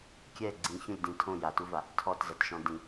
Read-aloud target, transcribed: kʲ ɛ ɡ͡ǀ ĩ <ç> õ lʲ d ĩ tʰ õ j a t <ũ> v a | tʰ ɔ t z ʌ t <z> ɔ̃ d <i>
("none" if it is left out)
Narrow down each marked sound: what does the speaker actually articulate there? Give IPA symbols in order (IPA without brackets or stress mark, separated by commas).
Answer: ç, u, ʃ, ĩ